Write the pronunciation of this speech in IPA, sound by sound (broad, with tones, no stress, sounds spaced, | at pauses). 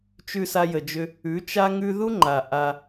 t͡ʃ ʉ˧ s a˧ j ə˨ d͡ʒ ʏ˧ | ʉ˨˦ t͡ʃ a˦ ŋ ʉ˦ ð u˦ ŋ͡ǃ a˨ ʔ a˧